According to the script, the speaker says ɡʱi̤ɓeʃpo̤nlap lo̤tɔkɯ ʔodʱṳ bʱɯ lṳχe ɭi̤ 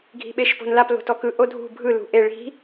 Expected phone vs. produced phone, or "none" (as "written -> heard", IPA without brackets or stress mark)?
χ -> ʔ